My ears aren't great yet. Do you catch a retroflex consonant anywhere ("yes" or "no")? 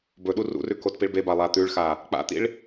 yes